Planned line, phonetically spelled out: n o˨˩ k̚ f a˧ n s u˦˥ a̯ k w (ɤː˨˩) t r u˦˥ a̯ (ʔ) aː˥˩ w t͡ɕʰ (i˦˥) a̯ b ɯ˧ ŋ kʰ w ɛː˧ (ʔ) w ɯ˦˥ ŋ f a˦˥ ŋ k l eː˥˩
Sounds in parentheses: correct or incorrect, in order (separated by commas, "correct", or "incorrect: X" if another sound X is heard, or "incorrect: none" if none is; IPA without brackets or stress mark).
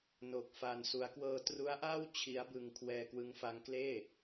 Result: incorrect: ɤː˧, correct, correct, incorrect: k